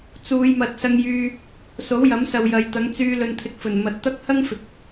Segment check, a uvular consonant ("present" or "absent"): absent